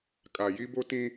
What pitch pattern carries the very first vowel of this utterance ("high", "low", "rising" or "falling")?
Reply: low